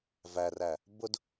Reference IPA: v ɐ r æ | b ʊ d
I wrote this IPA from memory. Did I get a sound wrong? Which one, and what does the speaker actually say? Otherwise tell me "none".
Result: ɐ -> æ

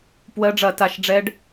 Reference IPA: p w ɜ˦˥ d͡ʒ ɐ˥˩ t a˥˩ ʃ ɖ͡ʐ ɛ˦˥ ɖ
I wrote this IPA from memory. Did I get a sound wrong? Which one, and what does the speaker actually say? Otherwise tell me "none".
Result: d͡ʒ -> ɖ͡ʐ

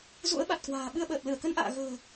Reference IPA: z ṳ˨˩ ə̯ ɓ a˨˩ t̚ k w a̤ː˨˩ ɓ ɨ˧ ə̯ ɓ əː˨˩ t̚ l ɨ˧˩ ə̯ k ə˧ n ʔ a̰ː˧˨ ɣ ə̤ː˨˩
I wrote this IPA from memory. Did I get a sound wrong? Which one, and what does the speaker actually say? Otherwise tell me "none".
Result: ṳ˨˩ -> ṵ˧˥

